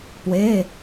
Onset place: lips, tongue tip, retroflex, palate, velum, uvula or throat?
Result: lips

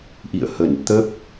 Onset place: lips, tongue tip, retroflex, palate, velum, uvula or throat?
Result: throat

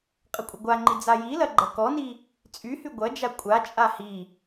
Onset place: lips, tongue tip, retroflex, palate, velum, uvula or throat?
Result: uvula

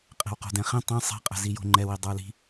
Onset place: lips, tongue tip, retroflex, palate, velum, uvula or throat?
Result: uvula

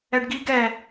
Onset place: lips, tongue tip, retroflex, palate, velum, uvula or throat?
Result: retroflex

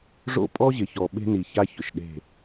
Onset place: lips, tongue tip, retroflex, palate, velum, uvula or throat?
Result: retroflex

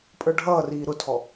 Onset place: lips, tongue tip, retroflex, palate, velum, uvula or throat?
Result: lips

